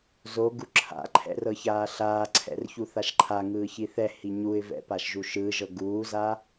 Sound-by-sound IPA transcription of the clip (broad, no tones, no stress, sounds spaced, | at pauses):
z o ɡ u ǁʰ a̰ ǃʰ ɛ̰ r ɤ ç aː ɬ aː ǀʰ ɛ̰ r ç u θ a ʃ ǃʰ a ŋ ɯː ç i θ ɛ h i ɲ u ɪ̯ v ɛ̰ p a ʃ ʒ u ʃ ɯː ʒ ɤ ɡ uː z a